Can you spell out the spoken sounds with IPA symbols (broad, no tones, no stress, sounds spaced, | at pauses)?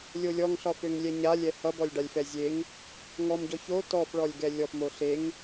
lʲ o lʲ ɔ ŋ ɬ ɒ f ø ŋ lʲ ɛ ɲ a lʲ ɛ h ʌ b ɔ lʲ ɖ a lʲ f ɛ zʲ e ŋ | ŋ ɔ m ɟ ɔ ç o t ɔ f ɭ ɔ lʲ ɡ ɛ lʲ ɔ f m o ɬ e ŋ